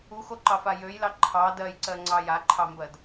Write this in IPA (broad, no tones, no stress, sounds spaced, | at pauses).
u x o ǃ ɑ f a j ø j l ɑ ǃʰ ɑ d ɜ j ǀ ɜ ŋ͡ǀ ɑ j a ǃʰ ɑ m b ɜ d